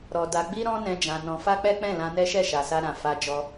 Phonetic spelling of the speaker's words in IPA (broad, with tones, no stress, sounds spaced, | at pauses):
ɾ ɔ˨ d a˧ ɡ͡b i˦ ɾ ɔ̃˦ n ɛ̃˧ d͡ʒ ã˧ n ɔ̃˧ f a˦ k͡p ɛ˦ k͡p ɛ̃˦˨ l ã˧ n ɛ˦ ʃ ɛ˦˨ ʃ a˨ s a˧ ɾ ã˨ f a˧ d͡ʒ ɔ˧